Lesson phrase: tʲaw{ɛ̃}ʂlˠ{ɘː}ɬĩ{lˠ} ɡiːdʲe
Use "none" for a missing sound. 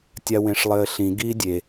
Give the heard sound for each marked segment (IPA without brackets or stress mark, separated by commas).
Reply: ẽ, ɘː, none